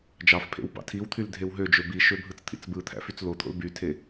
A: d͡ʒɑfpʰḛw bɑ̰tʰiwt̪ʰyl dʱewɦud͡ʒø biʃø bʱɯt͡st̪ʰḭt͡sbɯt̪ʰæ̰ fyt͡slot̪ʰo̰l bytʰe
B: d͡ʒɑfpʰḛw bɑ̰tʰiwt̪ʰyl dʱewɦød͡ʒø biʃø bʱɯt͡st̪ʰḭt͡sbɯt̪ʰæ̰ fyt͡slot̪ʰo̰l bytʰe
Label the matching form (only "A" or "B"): B